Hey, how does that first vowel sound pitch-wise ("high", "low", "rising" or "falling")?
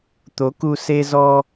rising